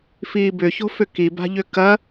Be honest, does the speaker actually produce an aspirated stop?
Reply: no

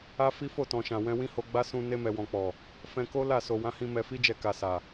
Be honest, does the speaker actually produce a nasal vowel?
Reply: yes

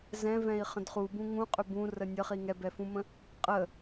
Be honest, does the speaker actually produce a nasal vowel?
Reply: yes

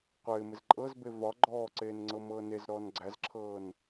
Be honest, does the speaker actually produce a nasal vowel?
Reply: no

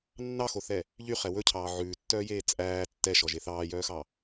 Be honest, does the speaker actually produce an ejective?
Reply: yes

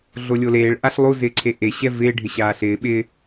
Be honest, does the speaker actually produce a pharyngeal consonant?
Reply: no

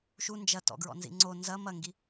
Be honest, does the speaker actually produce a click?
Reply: yes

